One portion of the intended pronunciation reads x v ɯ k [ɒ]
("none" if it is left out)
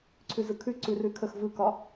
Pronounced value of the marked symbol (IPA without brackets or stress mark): ɒ